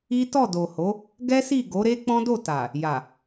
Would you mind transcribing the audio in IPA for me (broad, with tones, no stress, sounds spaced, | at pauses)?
i˦ t ɔ˦˨ d o˨ h o˨˦ | ɡ ɛ˦ s i˦˨ ɡ o˨˦ ɾ e˦ k͡p ɔ̃˦ d o˦˨ t a˨ | j a˨